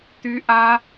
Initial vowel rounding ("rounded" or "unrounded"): rounded